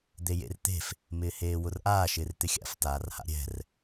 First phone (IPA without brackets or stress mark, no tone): d̪